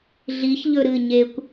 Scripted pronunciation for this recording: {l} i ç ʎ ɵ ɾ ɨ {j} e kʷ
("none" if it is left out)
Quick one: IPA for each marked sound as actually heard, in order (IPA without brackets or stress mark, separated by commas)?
ɮ, ɲ